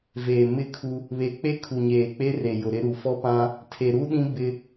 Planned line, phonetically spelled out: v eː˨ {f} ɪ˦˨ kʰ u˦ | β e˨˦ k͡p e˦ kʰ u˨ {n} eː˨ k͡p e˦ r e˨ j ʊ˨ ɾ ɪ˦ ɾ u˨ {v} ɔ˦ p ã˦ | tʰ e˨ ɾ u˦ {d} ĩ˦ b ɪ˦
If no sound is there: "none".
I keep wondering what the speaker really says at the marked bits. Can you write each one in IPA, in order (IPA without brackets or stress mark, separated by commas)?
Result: m, ɲ, f, ɗ